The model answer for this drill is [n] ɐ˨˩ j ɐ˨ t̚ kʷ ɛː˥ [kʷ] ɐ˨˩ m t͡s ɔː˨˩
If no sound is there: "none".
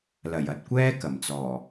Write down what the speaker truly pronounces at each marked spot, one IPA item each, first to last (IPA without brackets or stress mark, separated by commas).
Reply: l, k